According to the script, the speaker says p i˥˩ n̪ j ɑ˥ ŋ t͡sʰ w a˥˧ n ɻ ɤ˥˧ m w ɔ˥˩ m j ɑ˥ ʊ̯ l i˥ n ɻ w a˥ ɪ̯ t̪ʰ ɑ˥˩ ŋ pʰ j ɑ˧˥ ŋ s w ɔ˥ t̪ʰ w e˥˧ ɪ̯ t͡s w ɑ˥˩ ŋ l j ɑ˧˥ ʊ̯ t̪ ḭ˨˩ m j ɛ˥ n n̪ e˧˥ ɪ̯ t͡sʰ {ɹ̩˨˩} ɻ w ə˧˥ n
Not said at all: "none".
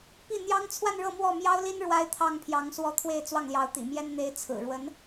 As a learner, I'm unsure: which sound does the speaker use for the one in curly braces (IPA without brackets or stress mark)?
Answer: ɹ̩˨˩